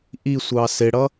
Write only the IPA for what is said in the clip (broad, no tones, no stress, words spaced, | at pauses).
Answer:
ʔisʷɑ sɪɽʌ